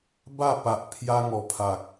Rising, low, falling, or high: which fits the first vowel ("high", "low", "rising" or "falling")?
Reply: falling